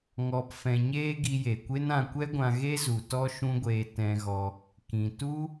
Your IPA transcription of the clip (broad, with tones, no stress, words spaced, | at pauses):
ŋɔ˨p fɛ̃˨ɲeː˧ ɡi˧je˨kʷe˦n ã˧kʷɛ˦ ɡʷã˧ɣe˦zu˨ tɔ˦ʃũ˦ɡʷeː˧ tɛ̃˧ɣɔ˧ | kĩ˨tu˦